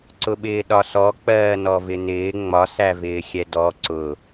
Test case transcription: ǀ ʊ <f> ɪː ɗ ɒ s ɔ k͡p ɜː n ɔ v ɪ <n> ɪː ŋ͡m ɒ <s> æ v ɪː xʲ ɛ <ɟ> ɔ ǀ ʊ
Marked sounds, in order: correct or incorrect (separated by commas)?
incorrect, correct, correct, incorrect